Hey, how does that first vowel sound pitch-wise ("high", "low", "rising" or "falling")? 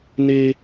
high